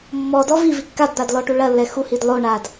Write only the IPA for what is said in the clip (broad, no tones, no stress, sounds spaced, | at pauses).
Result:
mː ɔ d ɔ v i v i kː a d d̪ a d l ɔ ʈ u ɭ ɐ lː ɛ x u h i d lˠ o ɳ a d